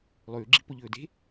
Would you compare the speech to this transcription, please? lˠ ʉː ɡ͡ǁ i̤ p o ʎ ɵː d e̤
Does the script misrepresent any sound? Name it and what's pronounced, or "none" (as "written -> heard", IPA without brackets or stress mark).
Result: none